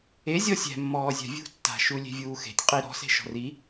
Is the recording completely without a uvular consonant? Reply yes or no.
no